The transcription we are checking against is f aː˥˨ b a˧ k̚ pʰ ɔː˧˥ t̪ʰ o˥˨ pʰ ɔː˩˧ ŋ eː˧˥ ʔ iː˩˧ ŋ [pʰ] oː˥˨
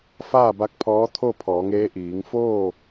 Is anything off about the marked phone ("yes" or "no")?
yes